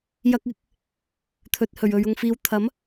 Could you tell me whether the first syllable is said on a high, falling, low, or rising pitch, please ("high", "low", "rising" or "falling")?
high